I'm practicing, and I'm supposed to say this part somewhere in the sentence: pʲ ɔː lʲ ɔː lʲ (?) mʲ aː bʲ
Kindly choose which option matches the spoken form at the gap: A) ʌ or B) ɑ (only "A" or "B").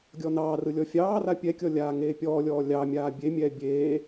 B